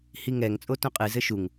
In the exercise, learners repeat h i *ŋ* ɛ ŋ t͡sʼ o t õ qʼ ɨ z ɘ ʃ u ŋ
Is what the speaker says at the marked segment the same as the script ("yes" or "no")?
yes